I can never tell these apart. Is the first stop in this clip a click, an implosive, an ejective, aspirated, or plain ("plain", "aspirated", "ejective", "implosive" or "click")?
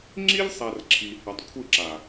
click